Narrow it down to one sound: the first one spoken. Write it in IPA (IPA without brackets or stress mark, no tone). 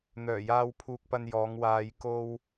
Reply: n̪